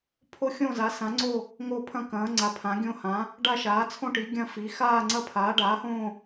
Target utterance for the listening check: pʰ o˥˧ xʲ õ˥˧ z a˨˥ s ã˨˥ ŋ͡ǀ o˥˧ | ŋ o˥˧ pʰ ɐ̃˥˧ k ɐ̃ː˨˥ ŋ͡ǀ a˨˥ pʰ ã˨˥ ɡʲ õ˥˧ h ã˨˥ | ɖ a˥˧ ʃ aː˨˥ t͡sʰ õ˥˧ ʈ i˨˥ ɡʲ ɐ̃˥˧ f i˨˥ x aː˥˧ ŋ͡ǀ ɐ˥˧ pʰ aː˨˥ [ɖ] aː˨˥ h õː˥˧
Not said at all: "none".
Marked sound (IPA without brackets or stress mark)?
ɖ